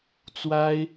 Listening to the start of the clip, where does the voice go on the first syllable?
high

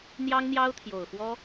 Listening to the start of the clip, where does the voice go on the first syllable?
high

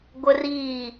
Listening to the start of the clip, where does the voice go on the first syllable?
high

